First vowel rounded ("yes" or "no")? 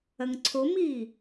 no